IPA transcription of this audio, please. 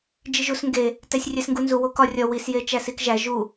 d͡ʒ i ʒ u s ŋ ɡ e | t æ sʲ rʲ æ s ŋ ɡ u n z u w o k ɒ rʲ ɒ w i s j e t͡ʃ æ s i k ʒ æ ʒ u

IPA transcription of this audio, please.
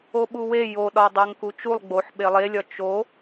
o ɓ u w e j o ɗ ɒ dˤ æ ŋ k u t͡ʃ u lˠ ɡ͡b o ħ ɓ e lˠ e lʲ ɒ t͡ʃ o

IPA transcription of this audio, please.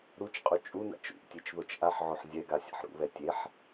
ɾ u t͡ʃ qʼ u t͡ʃʼ u n a̰ t͡ʃ ṵ ʔ tʲ e t͡ʃ ð o t͡ʃ ʔ a ħ ʕ o ħ zʲ ɛ ɡ a sʲ a̰ ħ ɾ ṵ β ɛ tʲ e ħ

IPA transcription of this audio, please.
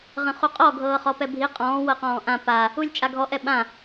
ʁ ə̃ χ u qʼ ɔ ɡʱ ɤː χ ɔ p ɛ bʱ i qʼ ɔ̃ː w ɤ q ɔ̃ː ʔ ã p a | u lʲ t͡ʃʼ a ɡʱ ɔ ʔ ɛ ɓ ã

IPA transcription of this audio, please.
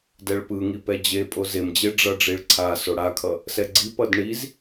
d ɛ ɭ p ɯ ŋ i p ɛ d͡ʑ e pʼ o z e m d͡ʑ e ɖ͡ʐ ʌ ɖ͡ʐ i ɭ ǀʰ a s o ɽ a kʰ ʌ | s ɛ ɡ͡ǀ i p ʌ d ɳ i z

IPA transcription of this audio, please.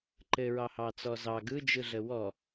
ǃ ɘ ɹ ɑ h ɑ t͡s ɔ z ɑ ɡ ɯ d͡ʒ ɯ ɮ ə w ɔ

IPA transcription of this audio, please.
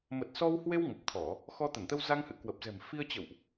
m ə˨˩ t̚ s ɔ˧ w h w e˧ w ŋ ə˨˩ p̚ t̪ʰ ɔ˧˩˨ | x ɔ˧ t̪ ə˧˩ n t̪ ə˧ w z a˧ ŋ h ɨ̰˧˨ k w ə˨˩ p̚ z ɛ̤˨˩ m f i˧ ə̯ t͡ɕ ə̰˧˨ w ʔ

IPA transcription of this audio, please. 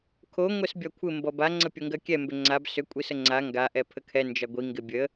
kʰ o ŋʷ ɛ s bʲ ɒ kʷʰ ɪ m b ɔ b a ŋ͡ǀ ə pʲ o ŋ ɡ ɜ kʲ ɛ m b ʏ ŋ͡ǀ a b s ʏ kʷʼ i s ə ŋ͡ǀ a ŋ ɡ a ʔ ɛ pʰ ə kʰ ɛ n d͡ʒ ɒ ɡʷ i ŋ ɡ ɪ bʲ ə

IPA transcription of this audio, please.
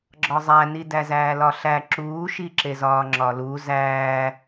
ɡ͡ǁ ɒ zˤ æ n i d æ z æː l ɒ ɬ æ ǁ uː ʃ i ǁ e z ɒː ŋ͡ǁ ɒ l u z æ

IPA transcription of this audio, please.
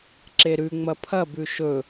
ǁ e ɾ ʉ ŋ͡m ɐ pʰ ɐ b ʉ ʃ ɵ

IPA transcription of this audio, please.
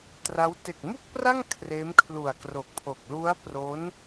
t r a˦˥ w t e˨˩ k̚ m u˥˩ k̚ p r a˥˩ ŋ kʰ r eː˦˥ m kʰ l u˨˩ a̯ k r o˨˩ k̚ pʰ o˨˩ k̚ l u˦˥ a̯ p r o˦˥ n

